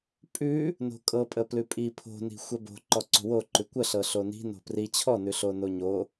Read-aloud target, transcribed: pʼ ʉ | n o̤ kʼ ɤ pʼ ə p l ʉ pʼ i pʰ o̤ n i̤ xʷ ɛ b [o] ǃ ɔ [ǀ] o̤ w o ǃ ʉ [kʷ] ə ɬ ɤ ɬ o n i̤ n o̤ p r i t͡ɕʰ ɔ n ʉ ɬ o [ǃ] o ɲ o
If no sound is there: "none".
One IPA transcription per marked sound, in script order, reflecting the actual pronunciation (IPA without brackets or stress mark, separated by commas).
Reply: o̤, ǀ, kʷ, n